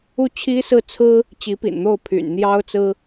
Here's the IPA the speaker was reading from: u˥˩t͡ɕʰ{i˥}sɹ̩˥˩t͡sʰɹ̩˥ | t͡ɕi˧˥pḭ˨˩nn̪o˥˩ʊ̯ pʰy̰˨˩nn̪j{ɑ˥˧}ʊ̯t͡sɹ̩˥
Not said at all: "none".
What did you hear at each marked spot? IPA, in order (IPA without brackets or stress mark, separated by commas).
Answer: i˥, ɑ˥